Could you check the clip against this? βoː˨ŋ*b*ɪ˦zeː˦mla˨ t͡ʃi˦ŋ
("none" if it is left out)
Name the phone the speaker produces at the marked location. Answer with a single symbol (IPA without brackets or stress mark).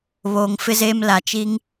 f